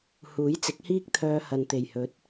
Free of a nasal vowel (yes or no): yes